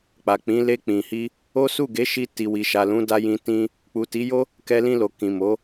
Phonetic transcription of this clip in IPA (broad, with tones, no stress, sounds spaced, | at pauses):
k͡p a˨ k͡p ĩ˨˦ l e˧ k͡p ĩ˨ h i˧ | o˦ s u˦˨ ɡ e˨˦ ʃ i˧ t i˨ w i˨ ʃ a˨ l ũ˨˦ d a˧ j ĩ˧ t ĩ˦ | k͡p u˨ t i˨˦ j o˦ | k ɛ˧ l ĩ˧ l o˨ k ĩ˨ m o˨˦